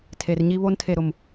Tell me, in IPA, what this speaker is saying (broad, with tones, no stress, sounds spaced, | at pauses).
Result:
tʰ e˨ r ɲ i˦ β o˦ n tʰ e˦˨ ɾ ʊ˦˨ m